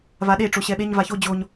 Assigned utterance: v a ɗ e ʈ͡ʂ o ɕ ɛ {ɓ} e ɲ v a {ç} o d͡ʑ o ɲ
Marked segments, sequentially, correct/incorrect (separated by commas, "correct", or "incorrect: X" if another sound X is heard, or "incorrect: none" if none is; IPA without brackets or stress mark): correct, correct